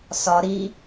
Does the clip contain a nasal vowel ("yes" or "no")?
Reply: no